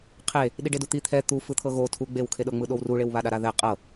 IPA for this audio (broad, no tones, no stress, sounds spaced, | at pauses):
qʰ e | ɗ i ɖ e d u t̪ i t̪ʰ ɛ t̪ u f ɯ t̪ʰ ɤ ɣ o tʰ u ɡ͡b e w kʰ e ɗ ɤ ŋ͡m ɯ ɗ o w r u ɭ e w β a ɗ a ɾ a ð ɛ qʼ ɤ